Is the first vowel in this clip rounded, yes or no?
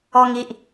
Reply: yes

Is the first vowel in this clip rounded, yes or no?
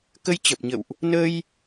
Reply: no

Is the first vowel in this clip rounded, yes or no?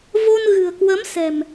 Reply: yes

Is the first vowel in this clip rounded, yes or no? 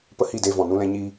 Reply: no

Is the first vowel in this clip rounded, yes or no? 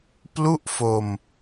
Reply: yes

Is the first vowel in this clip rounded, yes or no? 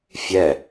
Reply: no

